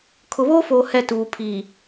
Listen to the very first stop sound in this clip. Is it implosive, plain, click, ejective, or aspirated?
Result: aspirated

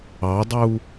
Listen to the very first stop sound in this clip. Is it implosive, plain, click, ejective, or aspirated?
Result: plain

